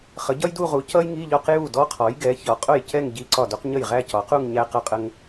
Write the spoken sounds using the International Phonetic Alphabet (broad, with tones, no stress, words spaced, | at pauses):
χə˩˥ɟʌ˥jdu˥˧ʁu˩˥ cʌ˥jŋi˧˥˧ʎɒ˥˧q ju˥˩ dɔ˥qʰɔ˩˥jɡɛ˩˥ çɒ˩˥qʼʊ˥˩jcɛ˥˧ŋ ɟi˧˥˧ǀɒ˥˩du˥q ɲə˥˩jʁæ˥˧cɒ˩˥qu˥˧ŋ ɲæ˥qʌ˥˧qʼə˥ŋ